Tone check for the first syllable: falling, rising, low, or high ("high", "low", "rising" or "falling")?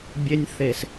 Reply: high